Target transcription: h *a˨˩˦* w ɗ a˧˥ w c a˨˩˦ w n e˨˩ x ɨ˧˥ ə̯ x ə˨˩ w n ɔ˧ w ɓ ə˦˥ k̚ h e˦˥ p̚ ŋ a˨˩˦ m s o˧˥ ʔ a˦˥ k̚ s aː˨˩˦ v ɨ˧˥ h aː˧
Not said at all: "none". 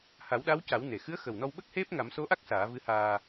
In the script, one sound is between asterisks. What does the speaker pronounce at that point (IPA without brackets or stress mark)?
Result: a˨˩˦